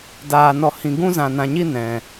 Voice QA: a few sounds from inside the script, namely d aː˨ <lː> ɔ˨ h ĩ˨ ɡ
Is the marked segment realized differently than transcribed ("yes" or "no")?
yes